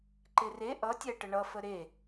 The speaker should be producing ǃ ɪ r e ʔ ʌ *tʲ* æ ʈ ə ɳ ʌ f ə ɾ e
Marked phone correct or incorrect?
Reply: correct